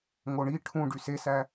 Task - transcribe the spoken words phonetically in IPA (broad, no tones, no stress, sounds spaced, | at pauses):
ŋ o ɳ i ʈʰ ũ ɖ y s e s æ